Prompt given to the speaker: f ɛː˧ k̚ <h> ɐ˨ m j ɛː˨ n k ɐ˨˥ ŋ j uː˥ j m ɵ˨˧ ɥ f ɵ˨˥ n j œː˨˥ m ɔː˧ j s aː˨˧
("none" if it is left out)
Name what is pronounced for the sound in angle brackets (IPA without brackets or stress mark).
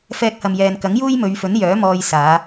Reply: h